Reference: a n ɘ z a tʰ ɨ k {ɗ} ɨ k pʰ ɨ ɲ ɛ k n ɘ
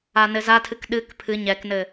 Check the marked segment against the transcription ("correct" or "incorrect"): correct